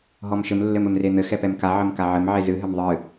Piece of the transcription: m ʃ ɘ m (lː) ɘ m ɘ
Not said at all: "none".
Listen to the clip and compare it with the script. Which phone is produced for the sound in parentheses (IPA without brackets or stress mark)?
lː